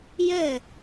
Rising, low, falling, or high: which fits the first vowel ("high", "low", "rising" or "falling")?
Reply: falling